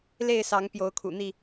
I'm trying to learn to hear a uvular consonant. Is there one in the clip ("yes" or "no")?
no